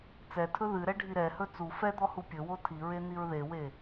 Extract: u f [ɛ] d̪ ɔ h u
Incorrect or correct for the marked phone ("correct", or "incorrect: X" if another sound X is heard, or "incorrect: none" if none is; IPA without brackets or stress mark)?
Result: correct